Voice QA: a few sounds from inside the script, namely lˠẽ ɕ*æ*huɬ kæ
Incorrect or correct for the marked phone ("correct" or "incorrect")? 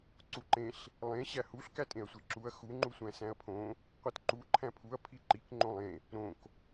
correct